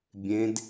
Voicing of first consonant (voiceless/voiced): voiced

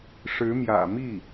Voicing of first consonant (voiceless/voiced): voiceless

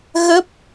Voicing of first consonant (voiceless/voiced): voiced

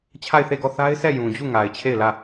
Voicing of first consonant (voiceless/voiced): voiceless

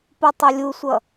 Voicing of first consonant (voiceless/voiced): voiceless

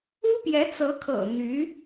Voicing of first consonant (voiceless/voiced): voiceless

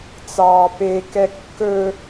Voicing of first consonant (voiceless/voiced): voiceless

